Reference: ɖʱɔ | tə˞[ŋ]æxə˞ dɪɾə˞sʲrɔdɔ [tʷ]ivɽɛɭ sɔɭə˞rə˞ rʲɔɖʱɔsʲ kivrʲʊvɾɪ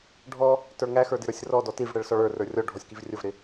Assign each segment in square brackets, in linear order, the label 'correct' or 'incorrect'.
correct, incorrect

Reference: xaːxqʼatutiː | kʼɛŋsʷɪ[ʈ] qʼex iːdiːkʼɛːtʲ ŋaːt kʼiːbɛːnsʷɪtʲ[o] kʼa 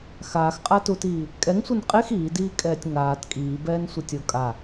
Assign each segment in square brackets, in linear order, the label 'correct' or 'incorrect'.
incorrect, correct

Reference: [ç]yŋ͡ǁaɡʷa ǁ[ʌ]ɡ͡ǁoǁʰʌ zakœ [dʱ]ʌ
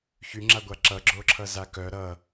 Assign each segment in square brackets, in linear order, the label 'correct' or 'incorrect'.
correct, correct, incorrect

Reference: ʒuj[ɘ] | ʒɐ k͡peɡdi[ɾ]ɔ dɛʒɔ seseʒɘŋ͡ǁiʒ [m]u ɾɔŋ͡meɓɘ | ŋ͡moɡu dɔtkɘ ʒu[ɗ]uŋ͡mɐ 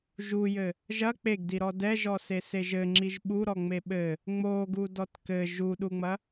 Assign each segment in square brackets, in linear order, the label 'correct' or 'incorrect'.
correct, correct, incorrect, correct

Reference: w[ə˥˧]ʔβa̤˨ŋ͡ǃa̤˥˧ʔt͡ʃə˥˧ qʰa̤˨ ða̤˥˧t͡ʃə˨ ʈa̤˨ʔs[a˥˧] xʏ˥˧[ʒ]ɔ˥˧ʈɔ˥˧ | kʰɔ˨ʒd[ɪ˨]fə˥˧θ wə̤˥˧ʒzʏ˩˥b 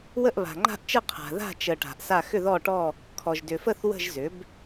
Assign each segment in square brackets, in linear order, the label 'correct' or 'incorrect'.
correct, correct, incorrect, incorrect

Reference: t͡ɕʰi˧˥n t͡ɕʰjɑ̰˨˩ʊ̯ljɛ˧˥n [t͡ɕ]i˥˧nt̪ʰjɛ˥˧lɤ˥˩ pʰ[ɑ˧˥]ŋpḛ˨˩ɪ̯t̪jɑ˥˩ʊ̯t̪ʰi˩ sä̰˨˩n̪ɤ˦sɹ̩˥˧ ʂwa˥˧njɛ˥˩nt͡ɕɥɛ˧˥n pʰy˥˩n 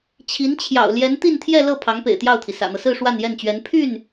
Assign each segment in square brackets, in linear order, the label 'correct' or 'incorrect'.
incorrect, correct

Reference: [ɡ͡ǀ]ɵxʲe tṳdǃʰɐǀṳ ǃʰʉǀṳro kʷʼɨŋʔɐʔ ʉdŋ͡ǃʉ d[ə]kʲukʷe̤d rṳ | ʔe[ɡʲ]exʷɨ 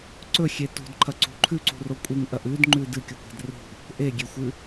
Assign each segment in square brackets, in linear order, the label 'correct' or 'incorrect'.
incorrect, incorrect, correct

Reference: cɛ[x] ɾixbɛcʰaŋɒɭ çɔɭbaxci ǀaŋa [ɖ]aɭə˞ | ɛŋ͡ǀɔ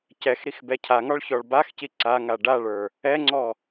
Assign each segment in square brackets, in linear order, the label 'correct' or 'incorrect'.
correct, correct

